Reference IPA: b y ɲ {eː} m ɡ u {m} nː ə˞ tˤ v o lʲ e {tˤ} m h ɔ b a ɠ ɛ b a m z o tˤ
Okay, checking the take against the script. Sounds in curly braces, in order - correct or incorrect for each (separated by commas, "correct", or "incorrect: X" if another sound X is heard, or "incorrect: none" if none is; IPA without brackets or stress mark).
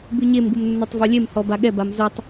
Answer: incorrect: e, correct, incorrect: none